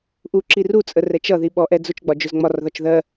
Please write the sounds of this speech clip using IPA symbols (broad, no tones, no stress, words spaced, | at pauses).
ʔuǁi rut͡sʼə rɛt͡ʃʌ ðiɓɔ ʔɛd͡zʊt͡ʃɡ͡bɒ d͡ʒʊzŋ͡mɒrðɒt͡ʃ ðɜ